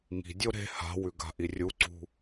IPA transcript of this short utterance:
ŋi̤dʲo ɾe̤ ha̤wʉ ɡa̤ʔirʲuǀṳ

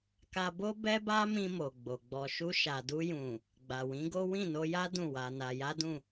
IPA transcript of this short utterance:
ka˧bo˦ bɛ˦ba˦mĩ˧ mo˨ɡ͡bo˨ɡ͡bɔ˧ ʃu˧ʃa˨du˧jũ˨ | ɡ͡ba˨wĩ˨˦ɡo˦ wĩ˦˨no˧ja˦ dũ˦˨wa˧na˧ ja˦dũ˦˨

